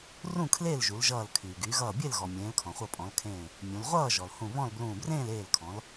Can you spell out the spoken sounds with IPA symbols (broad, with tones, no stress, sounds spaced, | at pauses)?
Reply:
r ũ˥˨ kʰ l eː˥˨ l ʒ u˩˧ l ʒ ʌː˧˩ l kʰ yː˩ ɡ yː˩˧ ɣ ʌː˧˩ bʲ e˥˨ l ɣ ɔ˩ mʲ ẽː˩˧ l kʰ ɔ̃˩ χʷ ʌ˧˩ pʼ ɔ̃˩˧ l kʰ ẽː˧˩ | mʲ ũ˩˧ l ʁʷ ʌː˥˨ ʒ ɔ˩ l h ũ˧˩ β ɔ̃˥˨ l b l ũː˧˩ b r ẽː˥˨ l eː˧˩ l kʰ ɔ̃˩˧ l